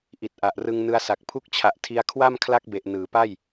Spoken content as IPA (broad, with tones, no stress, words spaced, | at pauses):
ʔi˨˩t̚ʔa˨˩ʔrɯ˧ŋ nɯ˧a̯sa˨˩k̚ pʰu˦˥k̚t͡ɕʰa˨˩ʔ tʰi˧a̯kʰwa˥˩m kʰla˦˥k̚be˨˩ʔ nɯː˩˦pa˥˩j